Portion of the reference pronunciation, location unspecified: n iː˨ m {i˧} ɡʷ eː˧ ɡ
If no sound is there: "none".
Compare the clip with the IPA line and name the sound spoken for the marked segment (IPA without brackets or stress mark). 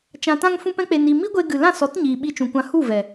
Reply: i˦